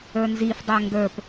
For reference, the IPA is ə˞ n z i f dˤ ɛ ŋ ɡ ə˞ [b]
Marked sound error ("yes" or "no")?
yes